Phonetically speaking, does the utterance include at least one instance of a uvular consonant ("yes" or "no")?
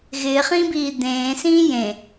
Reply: yes